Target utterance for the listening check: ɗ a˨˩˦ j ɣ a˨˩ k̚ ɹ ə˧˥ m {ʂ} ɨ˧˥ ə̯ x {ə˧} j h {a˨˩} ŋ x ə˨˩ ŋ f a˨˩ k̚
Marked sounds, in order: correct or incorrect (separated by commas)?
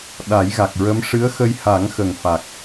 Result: correct, correct, incorrect